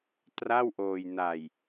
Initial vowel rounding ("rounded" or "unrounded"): unrounded